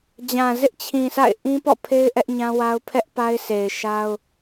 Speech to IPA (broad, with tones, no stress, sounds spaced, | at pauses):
d͡ʑ ã˨ z ɪ˦ ʔ t͡ɕʰ ĩ˨ s a̰˦˨ ɪ̯ ʔ ĩ˦ p ɔ̰˦˨ pʰ e˦ ɪ̯ ʔ ɛ˦ ʔ ɲ ã˦ w a˦ ʊ̯ pʰ ɛ˦ ʔ p a˦ ɪ̯ sʰ e˨ ɪ̯ ʃ a˦ ʊ̯